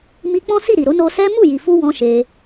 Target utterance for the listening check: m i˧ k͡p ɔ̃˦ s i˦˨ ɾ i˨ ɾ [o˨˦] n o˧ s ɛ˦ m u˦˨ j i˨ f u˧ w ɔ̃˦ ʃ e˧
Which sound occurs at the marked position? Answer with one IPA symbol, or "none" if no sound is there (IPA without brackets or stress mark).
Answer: o˨˦